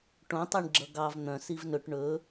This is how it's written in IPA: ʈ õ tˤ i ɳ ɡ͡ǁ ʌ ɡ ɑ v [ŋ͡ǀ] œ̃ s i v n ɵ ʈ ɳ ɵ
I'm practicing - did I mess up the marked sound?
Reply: yes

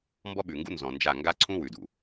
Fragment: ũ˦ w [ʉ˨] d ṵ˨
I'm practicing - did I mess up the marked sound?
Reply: no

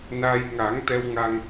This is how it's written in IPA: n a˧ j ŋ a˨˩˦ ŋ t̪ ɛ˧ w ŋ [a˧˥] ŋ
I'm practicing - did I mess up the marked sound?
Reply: yes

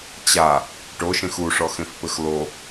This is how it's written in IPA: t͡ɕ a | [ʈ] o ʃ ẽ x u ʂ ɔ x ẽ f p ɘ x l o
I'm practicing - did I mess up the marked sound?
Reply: no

